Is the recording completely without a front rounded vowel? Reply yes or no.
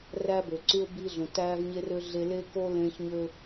no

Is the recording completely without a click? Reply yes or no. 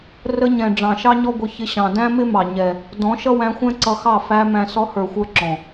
no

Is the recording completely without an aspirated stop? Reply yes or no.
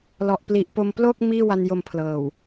no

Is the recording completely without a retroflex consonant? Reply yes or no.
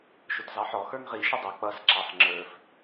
yes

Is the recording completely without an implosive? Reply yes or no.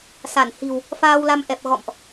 yes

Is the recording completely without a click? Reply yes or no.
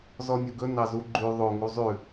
no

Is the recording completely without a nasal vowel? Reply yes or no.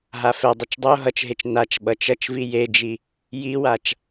yes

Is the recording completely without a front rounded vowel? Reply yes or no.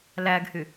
no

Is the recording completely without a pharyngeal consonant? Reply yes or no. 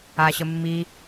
yes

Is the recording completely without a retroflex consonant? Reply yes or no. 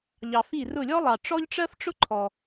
no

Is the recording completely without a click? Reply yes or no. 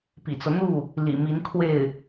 yes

